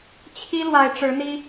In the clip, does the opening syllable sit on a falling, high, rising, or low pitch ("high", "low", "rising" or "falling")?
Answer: high